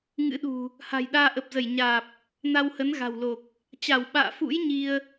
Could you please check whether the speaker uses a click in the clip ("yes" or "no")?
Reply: no